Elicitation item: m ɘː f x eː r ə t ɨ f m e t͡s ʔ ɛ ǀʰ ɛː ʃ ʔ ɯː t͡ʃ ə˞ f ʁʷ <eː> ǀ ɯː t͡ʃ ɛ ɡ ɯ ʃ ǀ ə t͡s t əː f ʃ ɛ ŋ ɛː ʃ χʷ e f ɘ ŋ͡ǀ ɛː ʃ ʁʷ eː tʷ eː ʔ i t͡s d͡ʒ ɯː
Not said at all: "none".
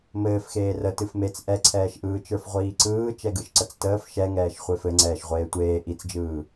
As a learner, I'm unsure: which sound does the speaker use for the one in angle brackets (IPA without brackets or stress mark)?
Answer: iː